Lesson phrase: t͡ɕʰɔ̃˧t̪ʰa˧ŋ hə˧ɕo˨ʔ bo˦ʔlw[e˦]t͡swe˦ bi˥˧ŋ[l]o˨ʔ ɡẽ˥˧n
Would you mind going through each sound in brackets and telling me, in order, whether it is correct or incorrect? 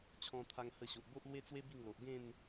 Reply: correct, correct

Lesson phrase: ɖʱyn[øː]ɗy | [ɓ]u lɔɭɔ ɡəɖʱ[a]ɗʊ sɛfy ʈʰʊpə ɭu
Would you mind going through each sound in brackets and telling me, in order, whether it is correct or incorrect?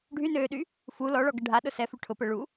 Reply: correct, incorrect: f, correct

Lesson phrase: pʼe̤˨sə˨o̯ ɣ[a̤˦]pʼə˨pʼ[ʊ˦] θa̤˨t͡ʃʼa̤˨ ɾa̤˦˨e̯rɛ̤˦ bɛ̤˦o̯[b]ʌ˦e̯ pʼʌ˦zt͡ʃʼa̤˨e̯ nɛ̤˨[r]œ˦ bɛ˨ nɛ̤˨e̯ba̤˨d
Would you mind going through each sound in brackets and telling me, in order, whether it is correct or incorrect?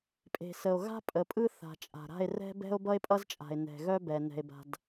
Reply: correct, incorrect: ɯ˦, correct, incorrect: ɣ

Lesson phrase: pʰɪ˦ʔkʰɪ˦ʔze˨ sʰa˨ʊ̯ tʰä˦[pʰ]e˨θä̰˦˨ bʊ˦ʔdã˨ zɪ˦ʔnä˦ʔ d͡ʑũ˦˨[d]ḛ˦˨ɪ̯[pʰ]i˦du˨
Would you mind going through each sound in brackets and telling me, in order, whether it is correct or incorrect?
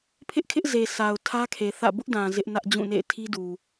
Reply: incorrect: kʰ, incorrect: n, incorrect: tʰ

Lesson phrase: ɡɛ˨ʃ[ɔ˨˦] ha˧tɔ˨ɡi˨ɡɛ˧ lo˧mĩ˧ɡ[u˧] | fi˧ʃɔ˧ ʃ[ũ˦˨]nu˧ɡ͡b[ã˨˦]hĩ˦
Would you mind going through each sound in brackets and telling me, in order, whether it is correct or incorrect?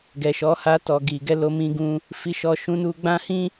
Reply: correct, incorrect: ũ˧, incorrect: ũ˧, incorrect: ã˦

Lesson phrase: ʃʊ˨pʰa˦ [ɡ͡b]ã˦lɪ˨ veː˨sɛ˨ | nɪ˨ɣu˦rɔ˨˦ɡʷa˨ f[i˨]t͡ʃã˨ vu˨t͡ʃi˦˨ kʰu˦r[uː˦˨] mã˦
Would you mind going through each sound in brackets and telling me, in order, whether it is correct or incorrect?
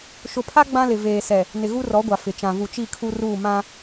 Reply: correct, incorrect: ɪ˨, correct

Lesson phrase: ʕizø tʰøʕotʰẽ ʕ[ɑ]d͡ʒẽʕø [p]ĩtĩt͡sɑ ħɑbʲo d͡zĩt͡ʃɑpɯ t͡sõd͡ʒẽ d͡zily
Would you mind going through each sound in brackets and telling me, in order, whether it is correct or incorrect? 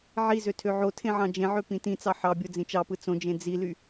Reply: incorrect: ɑ̃, correct

